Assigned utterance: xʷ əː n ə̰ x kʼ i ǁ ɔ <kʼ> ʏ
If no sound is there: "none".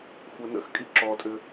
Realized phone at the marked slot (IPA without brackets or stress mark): tʼ